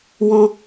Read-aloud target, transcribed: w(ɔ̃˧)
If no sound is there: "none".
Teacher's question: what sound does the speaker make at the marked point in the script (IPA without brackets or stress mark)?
ɔ̃˧